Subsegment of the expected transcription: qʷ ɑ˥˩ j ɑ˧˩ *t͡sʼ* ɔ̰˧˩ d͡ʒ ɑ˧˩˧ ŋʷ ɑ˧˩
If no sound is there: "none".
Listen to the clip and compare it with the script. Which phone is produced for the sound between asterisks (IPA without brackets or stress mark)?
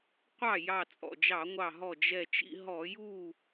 t͡sʼ